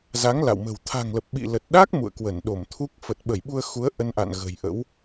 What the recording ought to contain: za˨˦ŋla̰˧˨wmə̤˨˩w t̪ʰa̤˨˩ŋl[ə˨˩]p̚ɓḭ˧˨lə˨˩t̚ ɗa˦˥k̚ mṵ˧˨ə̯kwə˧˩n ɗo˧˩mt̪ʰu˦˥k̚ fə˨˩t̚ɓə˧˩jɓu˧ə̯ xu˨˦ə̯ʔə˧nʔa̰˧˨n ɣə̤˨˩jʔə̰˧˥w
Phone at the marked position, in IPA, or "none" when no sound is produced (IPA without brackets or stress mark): ə˨˩